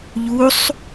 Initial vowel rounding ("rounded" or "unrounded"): rounded